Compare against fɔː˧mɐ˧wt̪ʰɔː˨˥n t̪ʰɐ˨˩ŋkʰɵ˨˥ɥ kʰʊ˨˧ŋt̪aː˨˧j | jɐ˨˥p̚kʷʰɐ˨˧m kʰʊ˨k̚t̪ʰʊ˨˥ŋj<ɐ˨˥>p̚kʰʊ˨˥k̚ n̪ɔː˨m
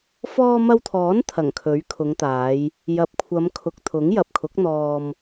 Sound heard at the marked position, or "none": ɐ˨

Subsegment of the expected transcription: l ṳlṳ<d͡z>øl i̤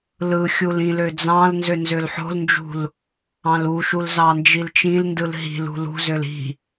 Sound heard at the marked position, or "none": z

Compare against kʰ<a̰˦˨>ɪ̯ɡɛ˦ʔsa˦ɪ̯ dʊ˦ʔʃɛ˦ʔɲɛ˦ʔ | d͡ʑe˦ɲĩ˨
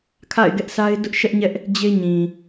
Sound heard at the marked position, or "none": a̰˦˨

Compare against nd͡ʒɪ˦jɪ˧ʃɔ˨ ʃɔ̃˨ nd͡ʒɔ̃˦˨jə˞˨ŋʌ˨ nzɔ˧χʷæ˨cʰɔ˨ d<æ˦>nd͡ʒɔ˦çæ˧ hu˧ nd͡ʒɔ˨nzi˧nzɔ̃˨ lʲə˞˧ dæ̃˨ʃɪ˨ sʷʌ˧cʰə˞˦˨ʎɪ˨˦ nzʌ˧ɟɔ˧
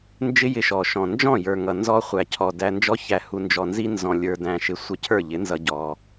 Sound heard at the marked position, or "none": æ˧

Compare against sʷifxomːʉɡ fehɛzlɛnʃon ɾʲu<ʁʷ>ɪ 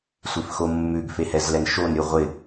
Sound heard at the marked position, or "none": ʁʷ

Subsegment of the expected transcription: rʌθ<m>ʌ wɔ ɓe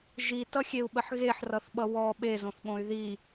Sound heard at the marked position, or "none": ɓ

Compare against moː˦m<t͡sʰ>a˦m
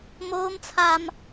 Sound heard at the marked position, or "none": t͡sʰ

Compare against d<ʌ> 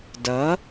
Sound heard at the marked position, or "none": ʌ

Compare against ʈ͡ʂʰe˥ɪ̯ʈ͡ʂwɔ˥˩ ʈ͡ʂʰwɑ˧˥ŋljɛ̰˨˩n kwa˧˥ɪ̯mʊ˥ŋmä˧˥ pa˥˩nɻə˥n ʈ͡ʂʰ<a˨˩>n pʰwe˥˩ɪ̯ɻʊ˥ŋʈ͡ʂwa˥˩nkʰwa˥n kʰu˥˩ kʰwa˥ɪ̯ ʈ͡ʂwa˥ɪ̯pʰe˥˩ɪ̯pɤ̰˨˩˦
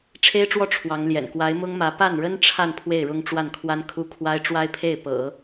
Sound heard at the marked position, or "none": a˥˧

